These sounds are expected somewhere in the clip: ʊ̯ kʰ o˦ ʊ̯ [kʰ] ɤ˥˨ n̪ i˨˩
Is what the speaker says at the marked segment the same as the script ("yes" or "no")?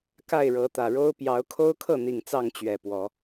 yes